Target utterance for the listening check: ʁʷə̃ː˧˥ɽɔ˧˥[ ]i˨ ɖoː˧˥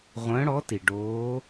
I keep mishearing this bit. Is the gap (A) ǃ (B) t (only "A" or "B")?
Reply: B